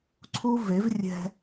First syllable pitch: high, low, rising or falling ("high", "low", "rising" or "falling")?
high